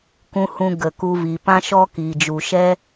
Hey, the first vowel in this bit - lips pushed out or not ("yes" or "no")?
yes